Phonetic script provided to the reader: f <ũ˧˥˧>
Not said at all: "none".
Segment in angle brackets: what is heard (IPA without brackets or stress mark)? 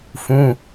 ũ˧˥˧